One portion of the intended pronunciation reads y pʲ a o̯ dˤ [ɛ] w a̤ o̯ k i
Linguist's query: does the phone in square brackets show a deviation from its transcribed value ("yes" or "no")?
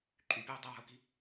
no